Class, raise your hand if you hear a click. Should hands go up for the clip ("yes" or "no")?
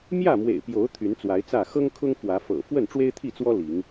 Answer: no